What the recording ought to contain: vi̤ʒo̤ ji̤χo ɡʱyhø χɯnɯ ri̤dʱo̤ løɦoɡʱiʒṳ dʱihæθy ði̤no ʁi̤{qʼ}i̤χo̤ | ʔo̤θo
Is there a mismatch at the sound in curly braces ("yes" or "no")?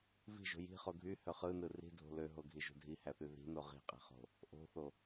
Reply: no